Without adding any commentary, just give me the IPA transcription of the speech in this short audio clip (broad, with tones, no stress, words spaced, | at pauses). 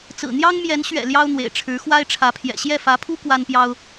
t͡sɹ̩˨˩n̪jɑ˥ŋmjɛ˧˥n ɕɥɛ̰˨˩ ljɑ˥ʊ̯n̪wḛ˨˩ɪ̯ʈ͡ʂʰɻ̩˧˥ xwa˥ɪ̯ʈ͡ʂʰä˧˥pʰjɛ̰˨˩ ɕjɛ˥˩fä˧˥pʰu˥ kwa˥npjɑ˥ʊ̯